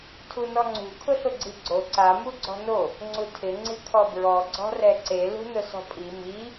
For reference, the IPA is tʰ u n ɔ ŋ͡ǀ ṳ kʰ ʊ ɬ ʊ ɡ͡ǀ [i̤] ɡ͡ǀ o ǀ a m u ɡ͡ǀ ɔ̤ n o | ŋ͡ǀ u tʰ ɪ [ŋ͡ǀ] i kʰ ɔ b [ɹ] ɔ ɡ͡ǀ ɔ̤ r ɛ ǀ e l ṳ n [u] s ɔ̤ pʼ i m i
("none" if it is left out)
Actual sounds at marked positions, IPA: i, ŋ͡ǀ, ɹ, ʊ

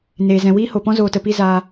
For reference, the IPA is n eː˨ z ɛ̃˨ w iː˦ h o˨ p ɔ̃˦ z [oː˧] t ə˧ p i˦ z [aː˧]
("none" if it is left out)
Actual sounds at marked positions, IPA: oː˧, aː˧

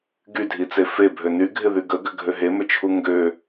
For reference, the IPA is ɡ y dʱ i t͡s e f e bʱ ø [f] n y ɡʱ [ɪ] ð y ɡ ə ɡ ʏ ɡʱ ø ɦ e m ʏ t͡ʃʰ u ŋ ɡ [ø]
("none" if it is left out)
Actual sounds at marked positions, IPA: none, ɪ, ø

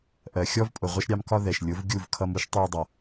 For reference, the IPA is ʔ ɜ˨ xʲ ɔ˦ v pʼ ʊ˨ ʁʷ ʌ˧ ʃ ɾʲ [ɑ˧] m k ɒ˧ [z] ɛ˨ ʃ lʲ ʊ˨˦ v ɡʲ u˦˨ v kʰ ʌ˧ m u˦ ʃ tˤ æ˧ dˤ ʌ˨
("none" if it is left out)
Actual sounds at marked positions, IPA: ɑ˧, ð

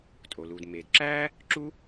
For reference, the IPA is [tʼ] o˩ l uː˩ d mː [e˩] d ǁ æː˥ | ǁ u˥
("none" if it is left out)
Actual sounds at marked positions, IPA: tʼ, eː˩

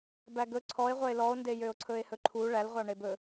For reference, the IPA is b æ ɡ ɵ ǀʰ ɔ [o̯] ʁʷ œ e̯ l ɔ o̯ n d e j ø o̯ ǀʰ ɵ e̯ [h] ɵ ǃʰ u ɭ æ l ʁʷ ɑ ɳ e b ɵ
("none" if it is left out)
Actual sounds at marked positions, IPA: e̯, h

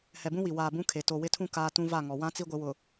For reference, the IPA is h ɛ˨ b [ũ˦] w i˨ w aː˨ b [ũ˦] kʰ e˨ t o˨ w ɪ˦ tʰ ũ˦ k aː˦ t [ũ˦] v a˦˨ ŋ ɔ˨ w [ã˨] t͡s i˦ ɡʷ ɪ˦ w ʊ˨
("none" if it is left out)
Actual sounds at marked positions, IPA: ũ˦, ũ˦, ũ˦, ã˦

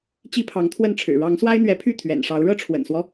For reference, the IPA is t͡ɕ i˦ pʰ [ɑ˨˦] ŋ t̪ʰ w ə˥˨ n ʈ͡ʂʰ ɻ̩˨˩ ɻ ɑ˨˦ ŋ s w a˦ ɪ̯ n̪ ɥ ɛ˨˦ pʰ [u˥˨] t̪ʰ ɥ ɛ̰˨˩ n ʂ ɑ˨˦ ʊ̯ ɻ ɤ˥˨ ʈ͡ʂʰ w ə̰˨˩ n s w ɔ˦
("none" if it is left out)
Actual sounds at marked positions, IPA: ɑ˨˦, y˥˨

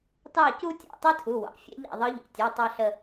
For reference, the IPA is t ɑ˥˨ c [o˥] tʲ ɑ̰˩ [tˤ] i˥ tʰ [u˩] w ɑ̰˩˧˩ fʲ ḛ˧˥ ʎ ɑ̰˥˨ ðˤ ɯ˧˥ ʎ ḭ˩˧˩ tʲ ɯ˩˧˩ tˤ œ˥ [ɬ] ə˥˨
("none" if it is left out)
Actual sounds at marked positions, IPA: u˥, tˤ, u˩˧˩, ɬ

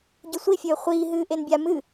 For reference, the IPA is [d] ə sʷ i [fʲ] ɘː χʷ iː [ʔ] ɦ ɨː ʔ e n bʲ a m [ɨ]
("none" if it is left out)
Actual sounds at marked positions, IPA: ɟ, fʲ, none, ɨ

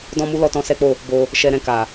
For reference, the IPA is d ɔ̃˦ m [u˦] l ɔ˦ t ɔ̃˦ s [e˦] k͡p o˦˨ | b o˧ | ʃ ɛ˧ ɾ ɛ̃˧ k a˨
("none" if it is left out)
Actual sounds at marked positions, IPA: u˦, ɛ˦

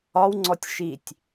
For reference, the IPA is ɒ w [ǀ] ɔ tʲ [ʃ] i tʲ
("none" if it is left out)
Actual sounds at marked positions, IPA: ŋ͡ǀ, ʃ

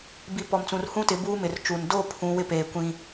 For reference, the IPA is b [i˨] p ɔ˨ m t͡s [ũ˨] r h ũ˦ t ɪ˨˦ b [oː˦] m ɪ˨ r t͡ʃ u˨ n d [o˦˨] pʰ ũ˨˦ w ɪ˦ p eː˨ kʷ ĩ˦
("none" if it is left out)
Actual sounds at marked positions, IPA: i˨˦, ũ˨, uː˦, o˦˨

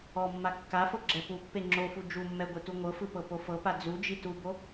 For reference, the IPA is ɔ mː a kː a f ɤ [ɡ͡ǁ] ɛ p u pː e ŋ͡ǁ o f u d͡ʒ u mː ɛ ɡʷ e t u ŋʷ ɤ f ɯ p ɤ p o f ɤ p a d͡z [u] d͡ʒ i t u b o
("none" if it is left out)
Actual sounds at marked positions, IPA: ɡ͡ǁ, u

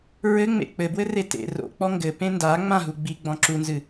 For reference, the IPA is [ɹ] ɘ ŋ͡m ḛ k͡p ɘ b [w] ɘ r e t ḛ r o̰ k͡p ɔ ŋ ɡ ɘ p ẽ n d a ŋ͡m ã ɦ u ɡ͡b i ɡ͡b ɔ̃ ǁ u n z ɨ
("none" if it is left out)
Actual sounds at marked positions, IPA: ɹ, w

